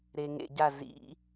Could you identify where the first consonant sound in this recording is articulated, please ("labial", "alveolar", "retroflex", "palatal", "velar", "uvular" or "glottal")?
alveolar